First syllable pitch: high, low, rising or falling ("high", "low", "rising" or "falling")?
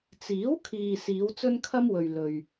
rising